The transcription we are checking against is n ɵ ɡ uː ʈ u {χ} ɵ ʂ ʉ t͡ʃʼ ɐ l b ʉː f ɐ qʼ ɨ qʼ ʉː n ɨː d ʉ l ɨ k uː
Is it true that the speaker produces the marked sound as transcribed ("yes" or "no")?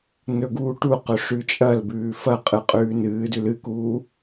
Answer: no